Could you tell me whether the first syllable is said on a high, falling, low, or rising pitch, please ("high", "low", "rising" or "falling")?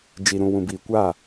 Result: low